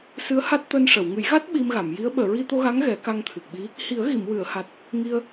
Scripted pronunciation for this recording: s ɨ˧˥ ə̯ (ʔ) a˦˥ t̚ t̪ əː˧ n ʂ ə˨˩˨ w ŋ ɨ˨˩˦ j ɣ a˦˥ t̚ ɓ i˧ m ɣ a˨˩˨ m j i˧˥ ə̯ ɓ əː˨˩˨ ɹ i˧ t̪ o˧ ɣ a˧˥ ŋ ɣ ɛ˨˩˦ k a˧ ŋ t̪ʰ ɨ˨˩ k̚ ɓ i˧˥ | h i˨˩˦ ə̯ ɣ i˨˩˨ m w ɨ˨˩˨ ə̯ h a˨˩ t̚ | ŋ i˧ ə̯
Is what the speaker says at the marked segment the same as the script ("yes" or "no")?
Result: no